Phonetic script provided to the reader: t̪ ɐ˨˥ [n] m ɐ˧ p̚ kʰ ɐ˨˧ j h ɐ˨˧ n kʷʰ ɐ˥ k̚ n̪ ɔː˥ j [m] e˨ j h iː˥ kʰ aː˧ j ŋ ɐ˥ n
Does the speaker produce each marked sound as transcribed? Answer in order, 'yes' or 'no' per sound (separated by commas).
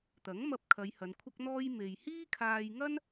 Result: no, yes